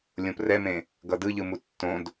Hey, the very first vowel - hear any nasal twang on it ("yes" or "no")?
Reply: yes